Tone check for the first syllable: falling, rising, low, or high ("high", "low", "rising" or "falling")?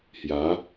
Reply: rising